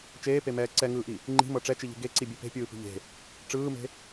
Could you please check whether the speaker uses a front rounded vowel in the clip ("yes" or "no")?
no